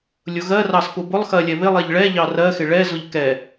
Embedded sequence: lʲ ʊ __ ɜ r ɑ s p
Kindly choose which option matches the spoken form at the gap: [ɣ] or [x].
ɣ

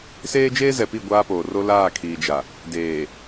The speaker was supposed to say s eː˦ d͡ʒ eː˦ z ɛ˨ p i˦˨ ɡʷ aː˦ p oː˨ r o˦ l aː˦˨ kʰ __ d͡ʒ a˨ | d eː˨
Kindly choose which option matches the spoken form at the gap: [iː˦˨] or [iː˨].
iː˨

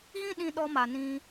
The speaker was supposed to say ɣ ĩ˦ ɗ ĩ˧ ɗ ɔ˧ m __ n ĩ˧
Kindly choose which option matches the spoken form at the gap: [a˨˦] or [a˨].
a˨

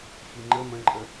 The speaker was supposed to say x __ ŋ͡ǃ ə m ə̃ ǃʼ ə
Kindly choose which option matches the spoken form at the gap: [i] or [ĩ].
i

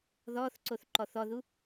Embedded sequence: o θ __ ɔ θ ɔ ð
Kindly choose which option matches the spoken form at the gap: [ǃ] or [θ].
ǃ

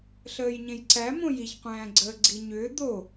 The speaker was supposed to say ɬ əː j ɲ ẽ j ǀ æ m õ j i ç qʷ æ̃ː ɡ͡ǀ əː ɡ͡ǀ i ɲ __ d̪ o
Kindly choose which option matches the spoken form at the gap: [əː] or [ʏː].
ʏː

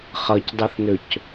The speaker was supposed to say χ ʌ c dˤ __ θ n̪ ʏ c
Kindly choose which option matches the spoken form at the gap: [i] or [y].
i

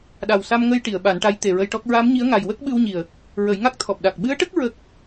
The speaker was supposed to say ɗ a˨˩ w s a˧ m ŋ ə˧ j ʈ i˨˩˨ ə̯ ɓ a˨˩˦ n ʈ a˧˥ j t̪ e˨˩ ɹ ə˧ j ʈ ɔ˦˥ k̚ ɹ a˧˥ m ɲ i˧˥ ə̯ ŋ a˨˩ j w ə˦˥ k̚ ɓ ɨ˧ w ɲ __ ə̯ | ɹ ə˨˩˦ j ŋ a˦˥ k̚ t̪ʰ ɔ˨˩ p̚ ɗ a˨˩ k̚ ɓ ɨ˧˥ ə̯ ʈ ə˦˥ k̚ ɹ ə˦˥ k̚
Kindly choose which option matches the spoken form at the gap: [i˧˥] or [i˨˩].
i˨˩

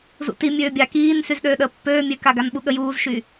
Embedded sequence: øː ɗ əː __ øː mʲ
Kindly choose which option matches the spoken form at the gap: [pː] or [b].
pː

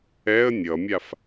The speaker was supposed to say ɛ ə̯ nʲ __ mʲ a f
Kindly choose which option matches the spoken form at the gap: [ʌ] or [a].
ʌ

